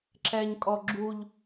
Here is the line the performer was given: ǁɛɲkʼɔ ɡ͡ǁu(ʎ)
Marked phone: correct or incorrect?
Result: correct